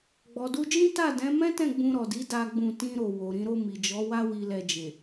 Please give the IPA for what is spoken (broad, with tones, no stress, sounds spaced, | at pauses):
ɡ͡b ɔ˨ d u˧ d͡ʒ ĩ˦ t a˦˨ d ɛ̃˨˦ m ɛ̃˦ t ɛ̃˦˨ ɡ͡b ũ˧ ɾ ɔ˨ d i˨˦ d a˦ ɡ͡b ũ˦˨ t ĩ˧ ɾ o˨ w o˨ ɾ ĩ˨˦ ɾ o˧ m i˨ d͡ʒ ɔ˨˦ w a˦ w i˧ l ɛ˧ d͡ʒ e˨